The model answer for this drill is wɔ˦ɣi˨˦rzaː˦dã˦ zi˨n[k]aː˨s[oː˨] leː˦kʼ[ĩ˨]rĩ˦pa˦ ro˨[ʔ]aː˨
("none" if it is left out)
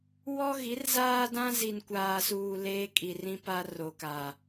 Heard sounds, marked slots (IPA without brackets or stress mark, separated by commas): kʷ, uː˨, i˨, k